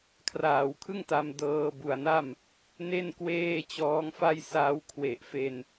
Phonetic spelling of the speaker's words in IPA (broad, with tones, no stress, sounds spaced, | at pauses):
kʰ r aː˩˦ w kʰ ɯ˥˩ ŋ t a˧ m d ɤː˧ b u˨˩ a̯ n a˥˩ m | n e˥˩ n k w eː˥˩ t͡ɕ ɔː˦˥ ŋ f a˥˩ j s aː˦˥ w kʰ w e˨˩ ʔ f e˧ n